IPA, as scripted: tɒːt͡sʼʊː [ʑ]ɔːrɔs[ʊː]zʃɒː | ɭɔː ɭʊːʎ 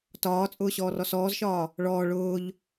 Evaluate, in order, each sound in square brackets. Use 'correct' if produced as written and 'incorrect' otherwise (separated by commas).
incorrect, incorrect